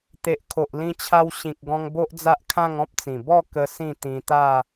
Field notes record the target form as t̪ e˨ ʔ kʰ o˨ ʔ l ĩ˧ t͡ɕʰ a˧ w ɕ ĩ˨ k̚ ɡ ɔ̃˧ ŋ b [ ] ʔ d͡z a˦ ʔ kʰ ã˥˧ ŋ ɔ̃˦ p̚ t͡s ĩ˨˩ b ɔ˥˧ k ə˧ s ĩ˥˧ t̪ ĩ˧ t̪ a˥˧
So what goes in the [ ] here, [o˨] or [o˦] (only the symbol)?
o˦